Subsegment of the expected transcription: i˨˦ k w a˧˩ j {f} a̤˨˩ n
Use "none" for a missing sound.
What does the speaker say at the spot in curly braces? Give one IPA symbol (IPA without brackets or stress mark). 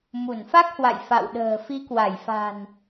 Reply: f